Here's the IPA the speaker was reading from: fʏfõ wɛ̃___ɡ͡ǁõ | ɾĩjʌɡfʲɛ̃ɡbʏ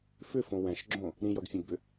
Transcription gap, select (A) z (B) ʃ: B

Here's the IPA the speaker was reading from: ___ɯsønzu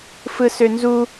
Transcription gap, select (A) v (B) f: B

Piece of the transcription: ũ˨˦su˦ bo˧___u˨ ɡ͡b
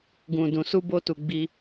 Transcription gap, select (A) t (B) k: A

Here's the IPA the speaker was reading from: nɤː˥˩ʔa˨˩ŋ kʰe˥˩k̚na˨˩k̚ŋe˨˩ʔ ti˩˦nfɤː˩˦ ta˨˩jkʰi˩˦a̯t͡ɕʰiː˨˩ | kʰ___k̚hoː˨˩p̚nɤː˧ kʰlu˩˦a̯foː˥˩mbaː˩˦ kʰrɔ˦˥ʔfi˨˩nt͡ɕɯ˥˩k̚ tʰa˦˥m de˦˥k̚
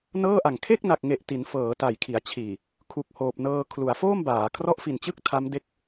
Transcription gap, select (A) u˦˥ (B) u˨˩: B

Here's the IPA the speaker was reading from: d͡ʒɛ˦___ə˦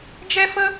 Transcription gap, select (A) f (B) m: A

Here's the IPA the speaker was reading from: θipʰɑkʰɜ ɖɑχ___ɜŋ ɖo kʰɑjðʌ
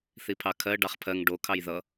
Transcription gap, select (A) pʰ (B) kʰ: A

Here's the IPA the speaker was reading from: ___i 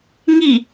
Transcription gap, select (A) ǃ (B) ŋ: B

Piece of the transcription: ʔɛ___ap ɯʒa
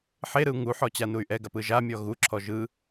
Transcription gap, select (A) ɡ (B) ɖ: A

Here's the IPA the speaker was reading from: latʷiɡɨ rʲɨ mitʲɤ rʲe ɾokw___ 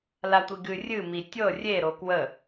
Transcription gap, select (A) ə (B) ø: A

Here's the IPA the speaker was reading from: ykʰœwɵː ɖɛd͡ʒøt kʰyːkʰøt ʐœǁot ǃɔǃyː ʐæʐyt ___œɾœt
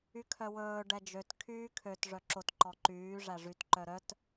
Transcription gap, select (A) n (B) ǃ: B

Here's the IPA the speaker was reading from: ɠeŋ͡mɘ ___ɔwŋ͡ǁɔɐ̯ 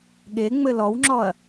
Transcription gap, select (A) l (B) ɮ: A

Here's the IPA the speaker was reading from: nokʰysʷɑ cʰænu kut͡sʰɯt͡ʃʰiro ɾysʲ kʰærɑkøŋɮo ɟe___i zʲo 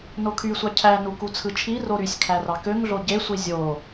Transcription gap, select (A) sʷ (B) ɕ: A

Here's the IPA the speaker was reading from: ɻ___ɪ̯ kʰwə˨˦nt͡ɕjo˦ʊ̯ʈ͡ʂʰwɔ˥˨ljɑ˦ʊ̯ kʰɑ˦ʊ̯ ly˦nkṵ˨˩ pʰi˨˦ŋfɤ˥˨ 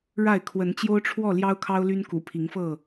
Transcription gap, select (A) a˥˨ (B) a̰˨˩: A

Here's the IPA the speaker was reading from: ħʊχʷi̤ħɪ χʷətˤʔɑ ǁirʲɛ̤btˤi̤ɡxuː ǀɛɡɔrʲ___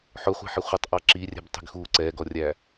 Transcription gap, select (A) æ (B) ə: A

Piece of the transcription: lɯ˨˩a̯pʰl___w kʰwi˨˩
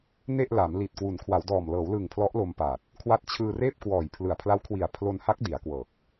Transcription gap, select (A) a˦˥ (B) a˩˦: A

